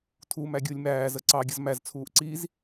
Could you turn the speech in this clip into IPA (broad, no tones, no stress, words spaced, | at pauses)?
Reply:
tʰumæ ɡʲulʲmæːzə ǀɑɡʲʌz mæzt͡sʰuːʔ ǀiz